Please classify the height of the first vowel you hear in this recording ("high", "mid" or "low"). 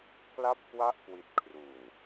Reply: low